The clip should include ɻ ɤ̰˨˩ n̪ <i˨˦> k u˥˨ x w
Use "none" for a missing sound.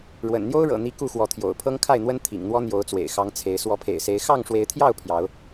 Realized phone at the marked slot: i˨˦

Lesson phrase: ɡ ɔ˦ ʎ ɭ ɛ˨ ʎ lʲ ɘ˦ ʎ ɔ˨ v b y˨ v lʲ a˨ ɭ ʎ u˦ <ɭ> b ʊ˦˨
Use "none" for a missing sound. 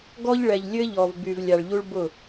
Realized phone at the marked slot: ɭ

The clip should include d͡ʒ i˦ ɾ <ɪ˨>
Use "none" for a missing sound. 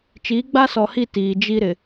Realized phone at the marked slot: ɪ˨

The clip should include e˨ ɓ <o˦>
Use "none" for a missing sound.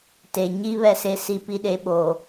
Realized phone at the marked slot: o˨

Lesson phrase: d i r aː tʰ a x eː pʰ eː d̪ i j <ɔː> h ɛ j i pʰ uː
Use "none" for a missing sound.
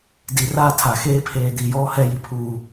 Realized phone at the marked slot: ɔː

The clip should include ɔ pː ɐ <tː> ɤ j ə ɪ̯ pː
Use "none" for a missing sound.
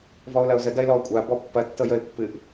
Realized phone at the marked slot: tː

